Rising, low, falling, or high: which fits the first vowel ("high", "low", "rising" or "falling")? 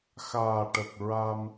low